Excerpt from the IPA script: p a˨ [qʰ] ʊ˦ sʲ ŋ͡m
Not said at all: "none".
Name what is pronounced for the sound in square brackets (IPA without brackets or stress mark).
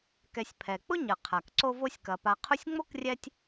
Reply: qʰ